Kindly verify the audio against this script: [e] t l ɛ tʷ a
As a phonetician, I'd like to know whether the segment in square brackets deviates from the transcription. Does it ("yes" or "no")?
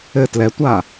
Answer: yes